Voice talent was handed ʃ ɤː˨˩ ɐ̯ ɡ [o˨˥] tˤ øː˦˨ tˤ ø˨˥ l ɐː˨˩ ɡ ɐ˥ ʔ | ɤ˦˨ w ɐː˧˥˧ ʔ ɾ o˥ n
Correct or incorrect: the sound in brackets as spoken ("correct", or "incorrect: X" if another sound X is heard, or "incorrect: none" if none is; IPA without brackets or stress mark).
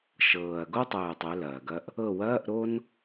incorrect: o˥